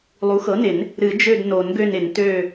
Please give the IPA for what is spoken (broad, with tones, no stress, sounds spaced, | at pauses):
lˠ u˩˥ x ɤ˩˥ n ɪ˨˩˦ n | ɾ ɨ˨˩˦ d͡ʒ ø˦˨ d n o˨˩˦ n ɡ ø˦˨ n ɪ˨˩˦ n t ø˦˨